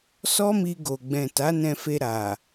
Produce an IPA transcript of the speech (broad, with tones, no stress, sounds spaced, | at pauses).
s ɔ˦ m i˧ ɡ o˨ ɡ͡b ɛ̃˨ t a˨˦ n ɛ̃˧ f e˧ ɾ a˨